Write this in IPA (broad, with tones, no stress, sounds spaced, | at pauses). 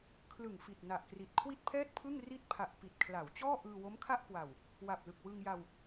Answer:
kʰ l ɯ˨˩ ŋ f i˨˩ t̚ n a˨˩ ʔ k r i˨˩ t̚ kʰ w i˥˩ t̚ pʰ ɛː˥˩ t̚ pʰ ɯ˥˩ ŋ r i˥˩ t̚ pʰ a˨˩ ʔ p i˨˩ t̚ kʰ l a˩˦ w t͡ɕ ɔː˥˩ ʔ ɯː˧ w o˦˥ m kʰ a˥˩ ʔ k w a˨˩ w | w a˨˩ p̚ l ɯ˨˩ k̚ w ɯ˧ ŋ j a˧ w